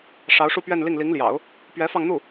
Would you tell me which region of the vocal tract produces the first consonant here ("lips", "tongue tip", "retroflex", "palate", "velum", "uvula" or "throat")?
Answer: retroflex